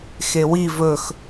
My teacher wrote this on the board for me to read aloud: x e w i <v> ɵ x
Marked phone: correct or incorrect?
correct